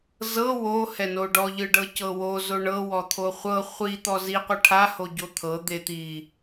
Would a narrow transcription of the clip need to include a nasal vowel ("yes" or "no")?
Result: no